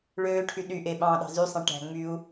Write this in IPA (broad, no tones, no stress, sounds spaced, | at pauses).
ɭ øː ʈʰ y ɗ y ʔ e ɓ ɑ̃ː ɗ ɑ̤ z y sˤ ẽ ʈ æ̤ ŋ͡m y u̯